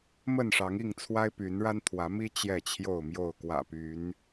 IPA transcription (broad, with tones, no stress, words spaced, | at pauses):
mə˥˨nʂɑ˨˦ŋi˥˨ŋt͡sʰwa˦ɪ̯ py˨˦nɻa˦nt̪ʰwä˨˦mi˦ t͡ɕjɛ˥˨t͡ɕʰjo˥˨ʊ̯mjo˥˨ʊ̯ kwä̰˨˩ py˨˦n